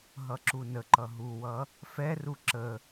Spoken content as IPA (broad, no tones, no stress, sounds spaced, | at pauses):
ɦ ʌ ǁ u n ə ǃ ʌ ɦ u w ʌ | f ɛ r u ǁ ə